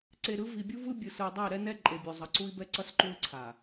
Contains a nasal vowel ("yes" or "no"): no